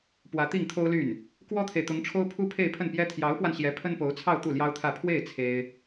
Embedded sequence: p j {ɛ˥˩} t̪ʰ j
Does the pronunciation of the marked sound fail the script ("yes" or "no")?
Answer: yes